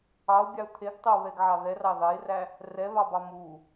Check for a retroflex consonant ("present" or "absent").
absent